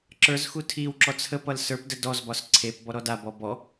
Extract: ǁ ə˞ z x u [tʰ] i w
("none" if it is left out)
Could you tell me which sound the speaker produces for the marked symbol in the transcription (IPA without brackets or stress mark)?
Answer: tʰ